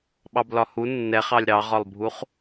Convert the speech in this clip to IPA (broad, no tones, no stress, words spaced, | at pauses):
ɓɑblɒhu nːɛχɑlʲ ɾɑʁɒlˠbʱuχ